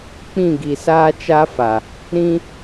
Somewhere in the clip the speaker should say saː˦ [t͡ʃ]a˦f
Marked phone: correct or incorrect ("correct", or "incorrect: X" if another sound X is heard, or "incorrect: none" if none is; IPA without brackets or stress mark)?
correct